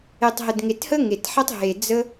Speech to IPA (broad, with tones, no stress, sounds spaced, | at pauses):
e˨˩ tˤ ɦ ə˨˩ d ŋ e˨˩ t h ə˦ ŋ e˨˩ t ħ ɛ˦ tˤ ɦ e˨˩ d͡z ə˦